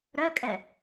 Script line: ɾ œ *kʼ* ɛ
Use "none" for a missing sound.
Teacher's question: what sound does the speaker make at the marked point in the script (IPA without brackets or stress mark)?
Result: kʼ